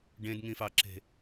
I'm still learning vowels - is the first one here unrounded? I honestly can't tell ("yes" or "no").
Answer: yes